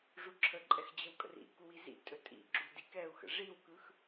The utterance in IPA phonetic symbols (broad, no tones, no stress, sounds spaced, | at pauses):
ʐ u ǁʰ ə ǃʼ ɛ x d͡ʑ ə w kʼ ə̰ r ḭ k u w i z ḭ tʼ ɵ tʼ ḭ ɡ͡ǁ u d i k ɛ u̯ x ə̰ ʐ i w k ɯ x